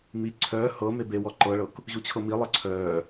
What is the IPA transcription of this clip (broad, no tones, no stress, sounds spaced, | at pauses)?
m i ǀʰ œː h ɤ m e b e w ɔ ǃ ɤ ɭ ɤ k | ʑ u t͡ɕʰ ɤ m i lˠ ɤ ǀʰ œː